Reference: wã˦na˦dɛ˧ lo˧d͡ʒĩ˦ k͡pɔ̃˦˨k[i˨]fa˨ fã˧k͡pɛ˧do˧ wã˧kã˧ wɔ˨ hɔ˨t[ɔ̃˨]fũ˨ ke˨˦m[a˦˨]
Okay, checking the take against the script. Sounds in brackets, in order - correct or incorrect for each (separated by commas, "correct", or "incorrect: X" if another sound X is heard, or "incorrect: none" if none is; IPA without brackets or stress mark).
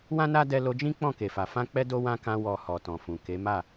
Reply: incorrect: e˨, correct, correct